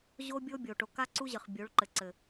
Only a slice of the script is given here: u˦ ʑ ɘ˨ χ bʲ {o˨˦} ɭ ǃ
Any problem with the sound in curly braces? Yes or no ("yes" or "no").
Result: no